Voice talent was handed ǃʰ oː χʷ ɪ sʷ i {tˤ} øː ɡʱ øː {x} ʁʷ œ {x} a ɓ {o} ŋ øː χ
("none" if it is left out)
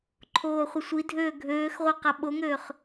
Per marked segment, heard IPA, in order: dʱ, x, q, o

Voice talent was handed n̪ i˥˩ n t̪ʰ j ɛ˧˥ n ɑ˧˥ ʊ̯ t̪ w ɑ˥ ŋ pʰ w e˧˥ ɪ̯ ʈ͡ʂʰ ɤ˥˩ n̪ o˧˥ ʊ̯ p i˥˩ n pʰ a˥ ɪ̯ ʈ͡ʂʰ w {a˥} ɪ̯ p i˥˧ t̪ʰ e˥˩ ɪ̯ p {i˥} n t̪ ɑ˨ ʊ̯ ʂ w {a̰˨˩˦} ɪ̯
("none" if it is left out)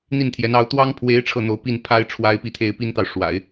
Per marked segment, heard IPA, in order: a˥, i˥, a̰˨˩˦

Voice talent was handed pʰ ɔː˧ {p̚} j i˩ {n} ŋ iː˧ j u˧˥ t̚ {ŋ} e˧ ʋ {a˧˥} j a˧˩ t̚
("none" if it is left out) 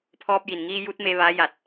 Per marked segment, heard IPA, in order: p̚, n, m, a˧˥

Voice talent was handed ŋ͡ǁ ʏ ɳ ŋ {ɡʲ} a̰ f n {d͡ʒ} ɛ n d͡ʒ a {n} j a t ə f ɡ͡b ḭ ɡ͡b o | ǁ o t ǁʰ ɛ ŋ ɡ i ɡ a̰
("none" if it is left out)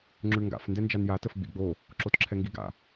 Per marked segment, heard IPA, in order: ɡ, d, n

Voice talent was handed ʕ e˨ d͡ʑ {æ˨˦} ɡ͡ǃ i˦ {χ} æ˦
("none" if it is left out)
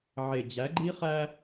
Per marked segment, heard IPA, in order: æ˨˦, χ

